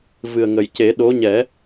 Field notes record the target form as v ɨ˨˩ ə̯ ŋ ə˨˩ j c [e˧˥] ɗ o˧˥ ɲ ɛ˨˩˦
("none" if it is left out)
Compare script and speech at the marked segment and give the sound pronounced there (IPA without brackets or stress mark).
e˨˩˦